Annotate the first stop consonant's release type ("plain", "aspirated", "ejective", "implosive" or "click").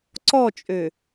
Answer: click